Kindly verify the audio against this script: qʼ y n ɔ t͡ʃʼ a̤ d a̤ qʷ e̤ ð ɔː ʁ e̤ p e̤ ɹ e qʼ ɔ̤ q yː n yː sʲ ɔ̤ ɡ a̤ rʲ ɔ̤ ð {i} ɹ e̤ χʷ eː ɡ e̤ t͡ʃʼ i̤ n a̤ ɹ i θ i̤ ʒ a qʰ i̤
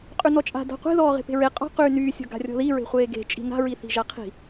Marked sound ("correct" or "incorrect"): correct